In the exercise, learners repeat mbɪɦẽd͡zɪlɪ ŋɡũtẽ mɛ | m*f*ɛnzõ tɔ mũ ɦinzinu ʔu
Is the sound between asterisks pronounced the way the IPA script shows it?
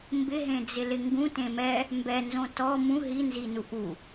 no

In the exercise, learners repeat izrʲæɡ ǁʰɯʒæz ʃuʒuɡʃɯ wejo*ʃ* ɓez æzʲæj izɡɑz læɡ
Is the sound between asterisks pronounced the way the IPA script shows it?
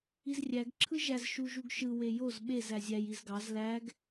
no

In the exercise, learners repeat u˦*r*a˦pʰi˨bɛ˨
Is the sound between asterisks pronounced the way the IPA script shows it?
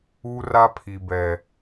yes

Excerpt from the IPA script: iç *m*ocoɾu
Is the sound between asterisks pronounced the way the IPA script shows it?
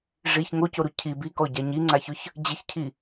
no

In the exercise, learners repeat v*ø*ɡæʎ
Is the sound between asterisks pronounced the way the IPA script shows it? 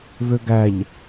yes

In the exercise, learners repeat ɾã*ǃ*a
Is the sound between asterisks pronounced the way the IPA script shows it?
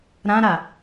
no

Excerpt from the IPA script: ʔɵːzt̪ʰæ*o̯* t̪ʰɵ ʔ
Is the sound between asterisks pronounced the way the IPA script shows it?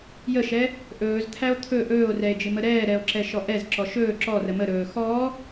yes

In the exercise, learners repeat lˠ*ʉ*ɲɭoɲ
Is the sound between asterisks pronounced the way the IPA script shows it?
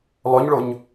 no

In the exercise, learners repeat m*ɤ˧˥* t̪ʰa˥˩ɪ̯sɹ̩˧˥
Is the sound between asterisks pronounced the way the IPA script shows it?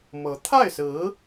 yes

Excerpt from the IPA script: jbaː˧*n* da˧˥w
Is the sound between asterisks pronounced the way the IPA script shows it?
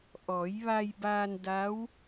yes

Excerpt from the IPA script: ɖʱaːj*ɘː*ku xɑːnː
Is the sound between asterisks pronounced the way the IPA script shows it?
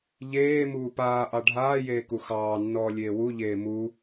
no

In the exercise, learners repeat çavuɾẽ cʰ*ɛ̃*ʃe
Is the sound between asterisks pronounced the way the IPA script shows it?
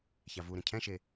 yes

